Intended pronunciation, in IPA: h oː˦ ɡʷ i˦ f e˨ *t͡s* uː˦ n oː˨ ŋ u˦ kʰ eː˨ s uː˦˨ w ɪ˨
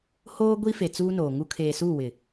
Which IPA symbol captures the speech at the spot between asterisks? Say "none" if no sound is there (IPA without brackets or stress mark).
t͡s